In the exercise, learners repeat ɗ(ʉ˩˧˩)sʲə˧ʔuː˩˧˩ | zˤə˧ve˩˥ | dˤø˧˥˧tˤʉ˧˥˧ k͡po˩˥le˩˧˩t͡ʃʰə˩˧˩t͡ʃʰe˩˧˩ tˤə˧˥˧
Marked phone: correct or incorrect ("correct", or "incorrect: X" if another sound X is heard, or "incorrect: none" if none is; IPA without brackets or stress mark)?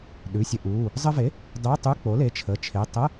correct